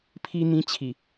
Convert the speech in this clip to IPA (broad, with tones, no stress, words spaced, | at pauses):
pʰi˧n̪ĩ˧t͡ɕʰi˨˩